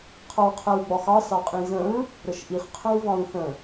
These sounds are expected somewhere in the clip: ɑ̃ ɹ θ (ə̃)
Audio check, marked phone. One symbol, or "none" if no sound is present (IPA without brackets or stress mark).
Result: ə̃